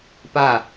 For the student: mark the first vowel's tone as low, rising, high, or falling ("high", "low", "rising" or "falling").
falling